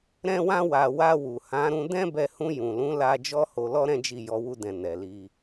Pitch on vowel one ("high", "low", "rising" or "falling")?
high